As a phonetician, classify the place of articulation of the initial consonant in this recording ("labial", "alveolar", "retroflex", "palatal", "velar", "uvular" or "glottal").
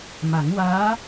labial